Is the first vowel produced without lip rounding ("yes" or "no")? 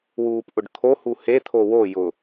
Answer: no